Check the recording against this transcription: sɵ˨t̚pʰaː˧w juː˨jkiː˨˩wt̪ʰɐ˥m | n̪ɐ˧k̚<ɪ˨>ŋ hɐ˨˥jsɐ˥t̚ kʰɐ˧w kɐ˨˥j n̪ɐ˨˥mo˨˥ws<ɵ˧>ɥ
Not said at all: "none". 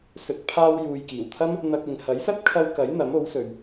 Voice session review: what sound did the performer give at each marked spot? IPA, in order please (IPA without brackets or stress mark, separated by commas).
ɪ˨, ɵ˨